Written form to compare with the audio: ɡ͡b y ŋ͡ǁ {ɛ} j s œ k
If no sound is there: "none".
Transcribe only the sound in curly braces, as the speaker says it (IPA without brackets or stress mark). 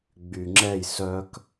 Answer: ɛ